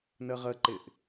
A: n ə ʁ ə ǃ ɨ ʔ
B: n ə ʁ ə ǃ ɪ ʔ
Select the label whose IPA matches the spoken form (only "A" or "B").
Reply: B